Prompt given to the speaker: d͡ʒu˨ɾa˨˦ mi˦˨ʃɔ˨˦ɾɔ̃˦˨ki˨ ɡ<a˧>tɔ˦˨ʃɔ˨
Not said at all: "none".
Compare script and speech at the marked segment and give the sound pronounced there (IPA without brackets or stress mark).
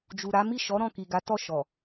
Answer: a˨˦